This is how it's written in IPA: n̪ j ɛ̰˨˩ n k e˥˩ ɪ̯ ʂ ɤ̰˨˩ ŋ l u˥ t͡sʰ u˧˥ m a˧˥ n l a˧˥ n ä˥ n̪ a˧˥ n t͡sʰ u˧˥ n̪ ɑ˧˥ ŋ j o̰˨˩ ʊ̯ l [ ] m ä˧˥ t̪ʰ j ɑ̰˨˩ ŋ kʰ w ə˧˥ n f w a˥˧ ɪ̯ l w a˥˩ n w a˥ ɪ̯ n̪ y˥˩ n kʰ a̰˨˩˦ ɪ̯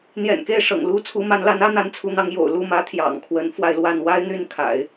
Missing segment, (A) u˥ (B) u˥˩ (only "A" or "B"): B